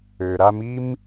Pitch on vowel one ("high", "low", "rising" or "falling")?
low